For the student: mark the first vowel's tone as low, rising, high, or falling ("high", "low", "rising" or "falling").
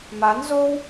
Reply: rising